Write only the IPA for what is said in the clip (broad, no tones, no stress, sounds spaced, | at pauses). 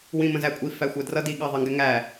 w ĩ m ə̃ z æ kʷʼ i f æ xʷ ɜ d r ʌ d i ɠ ɑ ðˤ ʌ ŋ ɡ ɛ ŋ æ